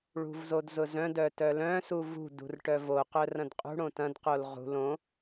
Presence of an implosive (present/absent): absent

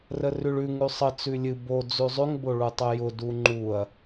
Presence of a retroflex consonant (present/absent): present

